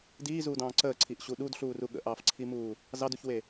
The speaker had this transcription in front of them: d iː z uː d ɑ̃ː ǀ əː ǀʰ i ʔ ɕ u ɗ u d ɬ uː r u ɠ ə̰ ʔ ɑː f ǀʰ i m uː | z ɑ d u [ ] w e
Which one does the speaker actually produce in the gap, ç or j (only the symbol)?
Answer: ç